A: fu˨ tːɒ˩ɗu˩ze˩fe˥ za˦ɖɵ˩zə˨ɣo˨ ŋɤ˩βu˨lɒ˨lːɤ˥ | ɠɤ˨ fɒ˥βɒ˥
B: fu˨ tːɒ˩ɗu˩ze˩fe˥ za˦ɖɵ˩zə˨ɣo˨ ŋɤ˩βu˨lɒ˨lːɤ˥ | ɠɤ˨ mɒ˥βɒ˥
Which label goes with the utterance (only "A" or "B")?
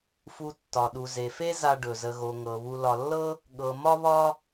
B